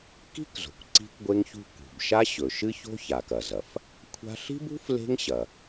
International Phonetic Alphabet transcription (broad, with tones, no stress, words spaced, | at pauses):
ki̤˥kzo̤˩kʷ ǀi̤˥kʷɡʷe˥ŋçṳ˥ kṳ˩bʃa˥ɕɵ˩ ʃɨ˥ço̤˥ça˩k ɐ˩zɐ˩f | kʷʰa̤˥ ɬi̤˥bṳ˥f le̤˥ŋɕɐ˩